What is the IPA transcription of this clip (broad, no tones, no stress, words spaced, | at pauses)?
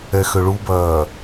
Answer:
ɛxøɭubɐː